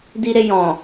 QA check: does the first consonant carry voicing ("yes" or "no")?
yes